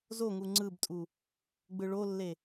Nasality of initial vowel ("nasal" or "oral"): oral